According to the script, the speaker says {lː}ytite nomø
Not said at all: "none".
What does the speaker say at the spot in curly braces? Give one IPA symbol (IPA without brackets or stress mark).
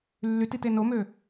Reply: lː